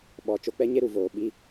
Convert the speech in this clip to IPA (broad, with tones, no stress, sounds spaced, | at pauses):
ɓ ɔ˨ t͡ʃ o˦ k͡p ɛ˦ ɲ e˦ ɾ u˨ v oː˨ ɓ i˦